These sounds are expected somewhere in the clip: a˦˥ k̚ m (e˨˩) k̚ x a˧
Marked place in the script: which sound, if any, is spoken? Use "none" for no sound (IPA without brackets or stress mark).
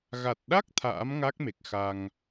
e˨˩